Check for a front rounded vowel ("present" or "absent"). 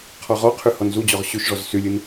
present